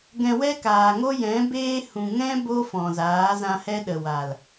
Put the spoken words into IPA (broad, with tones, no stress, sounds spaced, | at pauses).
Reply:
ɡ ɛ̃˧ w ɛ˦ k aː˨ ŋ o˦ j ɛ̃˨˦ b eː˦ h ũ˨ ŋ ɛ̃˦ b o˦ f ɔ̃˨ z aː˨˦ z ã˧ h ɛ˦ ɗ ə˨ w a˨ l